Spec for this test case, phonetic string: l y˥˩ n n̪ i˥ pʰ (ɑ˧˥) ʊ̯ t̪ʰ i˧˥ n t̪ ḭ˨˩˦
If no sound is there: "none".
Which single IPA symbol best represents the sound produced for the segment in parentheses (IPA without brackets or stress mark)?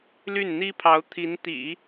ɑ˧˥